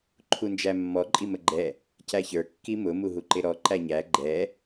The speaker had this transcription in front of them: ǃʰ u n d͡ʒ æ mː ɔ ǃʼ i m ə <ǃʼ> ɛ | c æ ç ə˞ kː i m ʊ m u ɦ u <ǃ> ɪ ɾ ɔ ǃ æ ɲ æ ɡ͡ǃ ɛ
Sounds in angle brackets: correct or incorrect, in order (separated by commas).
incorrect, correct